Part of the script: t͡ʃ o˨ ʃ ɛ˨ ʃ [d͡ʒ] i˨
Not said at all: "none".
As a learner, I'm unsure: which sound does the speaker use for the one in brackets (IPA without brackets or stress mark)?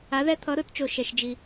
d͡ʒ